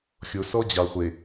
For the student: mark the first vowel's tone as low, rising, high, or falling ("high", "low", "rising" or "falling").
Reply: low